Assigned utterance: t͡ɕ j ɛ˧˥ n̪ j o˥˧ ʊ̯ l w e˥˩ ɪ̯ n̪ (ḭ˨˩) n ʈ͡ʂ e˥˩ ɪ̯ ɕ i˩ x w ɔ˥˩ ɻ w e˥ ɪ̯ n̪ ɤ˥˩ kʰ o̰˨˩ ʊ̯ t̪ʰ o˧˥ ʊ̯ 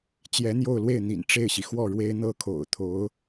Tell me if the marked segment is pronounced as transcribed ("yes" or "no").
yes